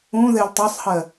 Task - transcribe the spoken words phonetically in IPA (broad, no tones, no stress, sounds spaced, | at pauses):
ũ ð ɛ l tˤ ɛ sˤ h ɜ